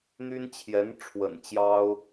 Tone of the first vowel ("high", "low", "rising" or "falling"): high